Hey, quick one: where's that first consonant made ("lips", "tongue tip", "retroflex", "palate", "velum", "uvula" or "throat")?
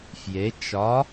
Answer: lips